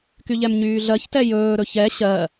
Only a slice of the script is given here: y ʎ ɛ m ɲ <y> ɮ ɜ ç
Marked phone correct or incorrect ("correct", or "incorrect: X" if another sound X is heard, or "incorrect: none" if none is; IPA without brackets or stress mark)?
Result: incorrect: yː